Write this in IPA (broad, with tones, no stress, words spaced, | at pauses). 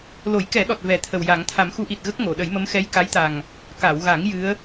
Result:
lo˨˩˦jkɛ˨˩˦ɗɔ˨˩t̚ vɛ˨˩˦t̪ʰə˨˩w ja˨˩˦ŋ t̪ʰa˨˩˦mxu˧˥ʔi˨˩t̚ ɣə˦˥k̚ŋo˨˩˨ɗə˨˩˦jmə˧˥m xɛ˧˥jka˧˥jt̪a˨˩ŋ | ka˨˩˨wɣa˨˩˦ŋ jɨ˧˥ə̯